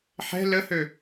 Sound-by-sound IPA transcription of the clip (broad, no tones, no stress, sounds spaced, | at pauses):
ħ ɛ̤ l ə h ø